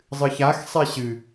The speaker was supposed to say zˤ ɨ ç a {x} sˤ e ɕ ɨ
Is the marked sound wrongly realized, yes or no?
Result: no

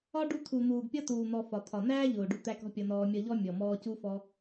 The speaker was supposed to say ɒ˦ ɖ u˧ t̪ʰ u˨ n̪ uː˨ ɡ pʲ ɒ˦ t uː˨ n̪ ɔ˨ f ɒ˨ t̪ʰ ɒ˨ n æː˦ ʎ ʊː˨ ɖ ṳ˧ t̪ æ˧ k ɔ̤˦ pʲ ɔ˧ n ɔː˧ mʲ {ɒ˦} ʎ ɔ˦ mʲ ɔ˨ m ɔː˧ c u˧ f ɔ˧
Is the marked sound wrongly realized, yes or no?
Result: no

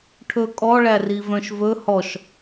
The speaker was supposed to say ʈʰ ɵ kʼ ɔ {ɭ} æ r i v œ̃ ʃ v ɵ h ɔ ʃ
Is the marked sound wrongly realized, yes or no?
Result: no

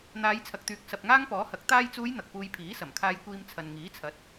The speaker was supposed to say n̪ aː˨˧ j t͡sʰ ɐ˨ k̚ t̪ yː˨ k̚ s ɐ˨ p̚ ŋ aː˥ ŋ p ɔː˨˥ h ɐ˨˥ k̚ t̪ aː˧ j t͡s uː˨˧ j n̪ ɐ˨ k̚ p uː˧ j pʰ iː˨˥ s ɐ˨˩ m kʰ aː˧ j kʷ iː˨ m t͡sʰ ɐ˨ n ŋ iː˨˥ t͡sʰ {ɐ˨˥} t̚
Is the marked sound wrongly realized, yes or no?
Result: no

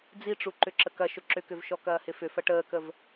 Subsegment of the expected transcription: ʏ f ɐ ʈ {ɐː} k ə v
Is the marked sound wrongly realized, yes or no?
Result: yes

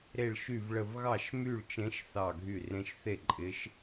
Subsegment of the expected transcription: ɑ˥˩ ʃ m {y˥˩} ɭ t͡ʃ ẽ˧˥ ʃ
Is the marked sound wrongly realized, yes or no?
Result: no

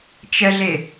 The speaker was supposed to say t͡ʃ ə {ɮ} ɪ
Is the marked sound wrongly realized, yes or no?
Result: no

